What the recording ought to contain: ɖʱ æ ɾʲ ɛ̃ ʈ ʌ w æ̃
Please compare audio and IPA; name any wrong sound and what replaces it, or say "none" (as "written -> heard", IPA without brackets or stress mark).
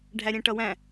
none